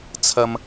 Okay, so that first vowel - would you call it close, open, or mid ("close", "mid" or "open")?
open